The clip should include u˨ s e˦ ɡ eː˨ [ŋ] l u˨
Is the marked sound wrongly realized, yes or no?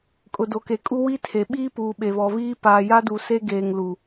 no